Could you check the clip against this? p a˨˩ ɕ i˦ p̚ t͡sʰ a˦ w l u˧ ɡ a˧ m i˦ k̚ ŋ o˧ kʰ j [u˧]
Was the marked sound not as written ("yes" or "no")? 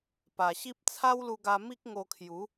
yes